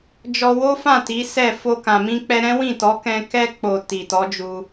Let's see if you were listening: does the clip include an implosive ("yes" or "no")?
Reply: no